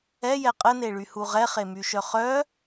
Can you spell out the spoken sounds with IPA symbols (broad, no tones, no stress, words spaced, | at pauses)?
ɛjɛ qʼəneɭyhu ʁɛχemyʃœ χœ